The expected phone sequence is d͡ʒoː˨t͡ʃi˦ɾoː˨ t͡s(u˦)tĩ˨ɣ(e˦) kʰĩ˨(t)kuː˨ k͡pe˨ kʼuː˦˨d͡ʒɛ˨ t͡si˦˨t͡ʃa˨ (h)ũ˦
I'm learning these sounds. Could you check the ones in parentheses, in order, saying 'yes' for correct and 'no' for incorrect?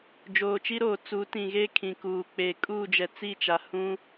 no, yes, no, yes

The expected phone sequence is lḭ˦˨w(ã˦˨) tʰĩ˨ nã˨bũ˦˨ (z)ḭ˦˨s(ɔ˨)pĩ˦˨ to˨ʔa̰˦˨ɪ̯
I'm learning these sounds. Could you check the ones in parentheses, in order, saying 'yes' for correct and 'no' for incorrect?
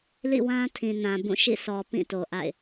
no, no, yes

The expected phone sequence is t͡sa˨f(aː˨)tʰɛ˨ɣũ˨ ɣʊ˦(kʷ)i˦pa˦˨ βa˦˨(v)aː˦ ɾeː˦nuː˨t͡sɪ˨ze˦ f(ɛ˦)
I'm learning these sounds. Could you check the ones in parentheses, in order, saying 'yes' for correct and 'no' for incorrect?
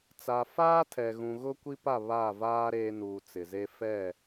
no, yes, yes, no

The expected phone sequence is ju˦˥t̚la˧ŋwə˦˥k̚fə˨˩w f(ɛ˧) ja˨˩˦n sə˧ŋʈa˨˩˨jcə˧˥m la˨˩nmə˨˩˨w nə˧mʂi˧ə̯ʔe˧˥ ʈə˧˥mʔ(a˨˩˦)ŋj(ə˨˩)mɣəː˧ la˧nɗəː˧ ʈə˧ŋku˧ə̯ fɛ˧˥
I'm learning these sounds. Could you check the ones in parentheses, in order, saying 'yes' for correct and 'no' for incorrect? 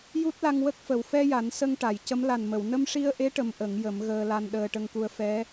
yes, no, no

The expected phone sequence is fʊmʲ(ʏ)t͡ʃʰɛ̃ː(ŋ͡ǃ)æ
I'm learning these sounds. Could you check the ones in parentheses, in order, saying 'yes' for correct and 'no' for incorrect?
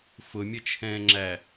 no, no

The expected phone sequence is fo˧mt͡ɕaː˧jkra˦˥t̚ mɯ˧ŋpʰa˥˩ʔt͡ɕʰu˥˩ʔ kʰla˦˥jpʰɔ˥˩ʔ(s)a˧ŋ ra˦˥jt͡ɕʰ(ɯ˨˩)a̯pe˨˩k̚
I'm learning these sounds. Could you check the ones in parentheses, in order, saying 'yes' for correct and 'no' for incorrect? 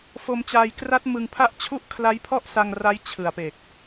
yes, yes

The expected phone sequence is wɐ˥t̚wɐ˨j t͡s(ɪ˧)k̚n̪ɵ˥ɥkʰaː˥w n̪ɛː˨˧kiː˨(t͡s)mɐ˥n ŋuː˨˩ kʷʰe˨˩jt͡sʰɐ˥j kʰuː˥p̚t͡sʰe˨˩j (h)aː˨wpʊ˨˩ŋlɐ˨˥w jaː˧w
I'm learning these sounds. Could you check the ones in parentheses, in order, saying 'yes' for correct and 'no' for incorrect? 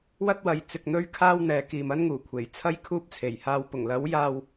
yes, no, yes

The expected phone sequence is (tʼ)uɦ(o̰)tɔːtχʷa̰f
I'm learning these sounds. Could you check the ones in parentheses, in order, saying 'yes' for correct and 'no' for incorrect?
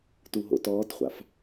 no, yes

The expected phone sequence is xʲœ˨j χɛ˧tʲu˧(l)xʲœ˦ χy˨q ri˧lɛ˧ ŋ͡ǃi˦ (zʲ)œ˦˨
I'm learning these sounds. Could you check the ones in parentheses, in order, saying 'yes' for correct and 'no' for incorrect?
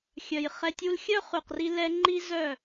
yes, no

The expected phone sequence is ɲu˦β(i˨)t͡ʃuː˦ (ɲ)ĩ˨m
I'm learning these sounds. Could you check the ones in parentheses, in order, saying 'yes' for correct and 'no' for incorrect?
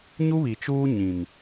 yes, yes

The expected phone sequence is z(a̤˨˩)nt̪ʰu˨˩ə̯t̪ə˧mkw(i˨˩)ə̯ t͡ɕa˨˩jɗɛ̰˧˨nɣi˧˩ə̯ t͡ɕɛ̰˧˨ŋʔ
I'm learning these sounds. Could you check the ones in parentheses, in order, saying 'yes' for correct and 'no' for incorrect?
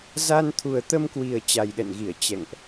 no, yes

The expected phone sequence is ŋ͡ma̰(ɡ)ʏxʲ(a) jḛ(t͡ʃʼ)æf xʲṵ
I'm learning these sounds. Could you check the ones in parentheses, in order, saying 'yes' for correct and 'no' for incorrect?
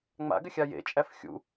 yes, yes, yes

